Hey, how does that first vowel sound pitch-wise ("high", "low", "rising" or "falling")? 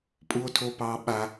high